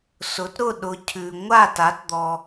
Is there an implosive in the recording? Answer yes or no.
yes